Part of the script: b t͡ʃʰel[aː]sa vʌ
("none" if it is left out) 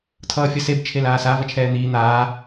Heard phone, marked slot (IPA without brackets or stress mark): aː